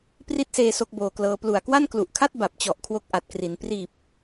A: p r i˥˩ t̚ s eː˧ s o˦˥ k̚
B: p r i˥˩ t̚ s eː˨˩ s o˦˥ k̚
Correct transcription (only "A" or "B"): A